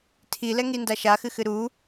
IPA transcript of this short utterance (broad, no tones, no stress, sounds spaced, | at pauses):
tʰ i l ɛ ŋ i n d a ʃ a x ɨ x ɨ ɾ u